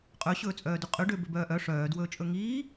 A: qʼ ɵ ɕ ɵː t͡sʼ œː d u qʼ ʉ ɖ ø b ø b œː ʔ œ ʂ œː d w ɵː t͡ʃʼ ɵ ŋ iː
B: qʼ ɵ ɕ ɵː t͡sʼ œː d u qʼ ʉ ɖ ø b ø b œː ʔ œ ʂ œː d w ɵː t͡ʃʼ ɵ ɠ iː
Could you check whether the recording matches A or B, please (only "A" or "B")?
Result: A